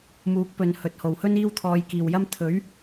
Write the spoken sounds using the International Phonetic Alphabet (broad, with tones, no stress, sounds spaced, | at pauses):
m uː˨˥ k̚ p ɵ˨ n h ɵ˨ t̚ h o˨˩ w h ɵ˥ n iː˥ w t̪ʰ ɔː˨˧ j k iː˨˩ w j ɐ˥ m t̪ʰ ɵ˨˥ ɥ